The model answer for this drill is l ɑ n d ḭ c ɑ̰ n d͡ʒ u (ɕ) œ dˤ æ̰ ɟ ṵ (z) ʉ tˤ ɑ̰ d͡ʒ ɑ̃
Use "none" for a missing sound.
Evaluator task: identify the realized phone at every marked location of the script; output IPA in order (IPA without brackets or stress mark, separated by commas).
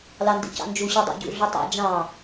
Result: ɕ, ɮ